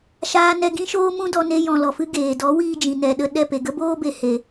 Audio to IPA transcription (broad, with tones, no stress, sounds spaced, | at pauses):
ʃ aː˦ n ɛ˦ ɡ ĩ˦ ʃ oː˦ m ũ˦ d ɔ˧ n e˧ j ɔ̃˧ l ɔ˨ f ɨ˦ ɡ eː˨ d ɔ˨˦ w iː˧ d͡ʒ ĩ˨ n ɛ˨ ɗ ə˧ ɗ ɛ˦˨ p e˨ ɡ ə˦ b oː˦ b e˨ h e˨